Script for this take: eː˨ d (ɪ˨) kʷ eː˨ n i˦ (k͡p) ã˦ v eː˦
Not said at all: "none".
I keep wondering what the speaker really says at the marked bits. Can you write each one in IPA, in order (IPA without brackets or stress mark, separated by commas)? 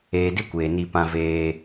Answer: ɪ˦, p